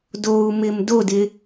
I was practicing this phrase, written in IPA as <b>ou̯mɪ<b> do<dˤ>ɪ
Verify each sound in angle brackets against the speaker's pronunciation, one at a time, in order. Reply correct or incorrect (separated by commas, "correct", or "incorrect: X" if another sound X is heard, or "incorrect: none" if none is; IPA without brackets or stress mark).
incorrect: d, incorrect: m, incorrect: d